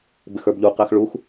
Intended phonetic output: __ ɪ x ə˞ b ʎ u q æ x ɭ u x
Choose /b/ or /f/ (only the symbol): b